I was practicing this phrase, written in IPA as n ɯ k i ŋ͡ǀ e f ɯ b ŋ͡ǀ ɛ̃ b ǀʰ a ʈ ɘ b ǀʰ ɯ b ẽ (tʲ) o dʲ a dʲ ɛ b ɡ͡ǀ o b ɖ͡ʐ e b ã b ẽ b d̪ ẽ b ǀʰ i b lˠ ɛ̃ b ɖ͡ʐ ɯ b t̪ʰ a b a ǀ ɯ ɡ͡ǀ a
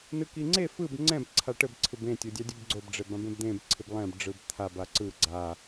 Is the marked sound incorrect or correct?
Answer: correct